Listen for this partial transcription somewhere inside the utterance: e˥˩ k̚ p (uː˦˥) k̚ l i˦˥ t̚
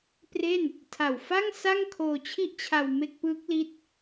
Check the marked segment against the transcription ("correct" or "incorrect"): incorrect